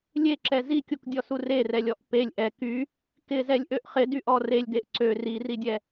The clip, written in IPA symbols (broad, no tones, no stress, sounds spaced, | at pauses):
lʲ e ǁ ɛ z i kʲ u k dʲ ɔ s u r e r ɛ lʲ ɔ ʔ p e lʲ ʔ ɛ k y | k ɪ z ɛ lʲ ʔ ø ʔ χ ɪ d y ʔ ɔ r e lʲ d e ʔ ǀ ø r i r i dʲ ɛ